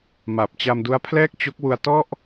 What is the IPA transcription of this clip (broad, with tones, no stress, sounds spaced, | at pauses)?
m a˨˩ p̚ t͡ɕ a˧ m d u˦˥ a̯ pʰ l ɛː˥˩ k̚ t͡ɕ o˦˥ k̚ w u˧ a̯ t ɔ˥˩ ʔ